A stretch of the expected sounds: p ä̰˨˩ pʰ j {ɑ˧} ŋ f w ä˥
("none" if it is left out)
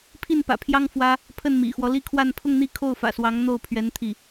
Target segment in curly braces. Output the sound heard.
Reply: ɑ˥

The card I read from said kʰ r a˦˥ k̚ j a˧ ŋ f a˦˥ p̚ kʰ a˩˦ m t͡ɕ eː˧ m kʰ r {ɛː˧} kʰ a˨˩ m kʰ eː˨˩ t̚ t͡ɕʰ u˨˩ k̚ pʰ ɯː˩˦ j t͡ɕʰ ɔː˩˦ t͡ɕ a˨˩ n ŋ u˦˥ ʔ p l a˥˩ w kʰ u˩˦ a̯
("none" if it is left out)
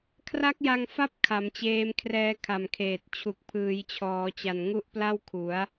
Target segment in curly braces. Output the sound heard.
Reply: ɛː˧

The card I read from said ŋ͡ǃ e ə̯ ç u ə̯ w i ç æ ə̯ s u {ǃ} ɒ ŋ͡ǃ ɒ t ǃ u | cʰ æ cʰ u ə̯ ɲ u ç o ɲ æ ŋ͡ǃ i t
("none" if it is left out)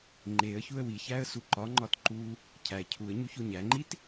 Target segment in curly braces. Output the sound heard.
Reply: ǃ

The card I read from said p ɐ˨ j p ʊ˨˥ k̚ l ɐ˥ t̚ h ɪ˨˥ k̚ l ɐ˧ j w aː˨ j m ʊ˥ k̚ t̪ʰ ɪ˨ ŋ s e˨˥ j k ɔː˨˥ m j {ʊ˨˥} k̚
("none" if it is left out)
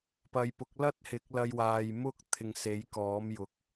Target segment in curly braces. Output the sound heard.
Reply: ʊ˨˥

